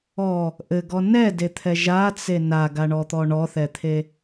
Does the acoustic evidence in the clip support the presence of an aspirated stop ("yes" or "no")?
yes